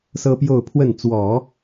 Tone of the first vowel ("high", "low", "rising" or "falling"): high